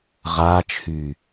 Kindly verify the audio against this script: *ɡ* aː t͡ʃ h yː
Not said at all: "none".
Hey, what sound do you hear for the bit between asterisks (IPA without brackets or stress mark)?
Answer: ʁ